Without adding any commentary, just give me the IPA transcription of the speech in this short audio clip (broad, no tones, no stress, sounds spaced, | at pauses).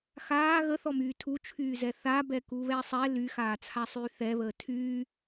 x aː ɣ ə θ ɔ m yː tʰ u t͡ʃʰ yː z ɛ θ a b ɛ k u β ɛ sˤ ɛ l y x aː t͡sʰ a sˤ yː θ ɛ β əː tʰ yː